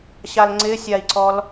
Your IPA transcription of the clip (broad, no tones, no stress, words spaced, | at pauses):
ɕalŋ͡ǀɪsʲai̯ǀɔl